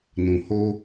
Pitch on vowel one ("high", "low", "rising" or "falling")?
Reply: low